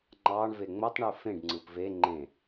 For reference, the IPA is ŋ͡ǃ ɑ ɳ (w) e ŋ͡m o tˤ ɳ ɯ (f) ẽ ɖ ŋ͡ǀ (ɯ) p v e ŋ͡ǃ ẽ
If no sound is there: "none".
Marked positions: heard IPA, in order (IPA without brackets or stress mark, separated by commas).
v, f, ɯ